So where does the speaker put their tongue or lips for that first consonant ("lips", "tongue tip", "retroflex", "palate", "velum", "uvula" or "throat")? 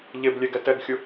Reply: palate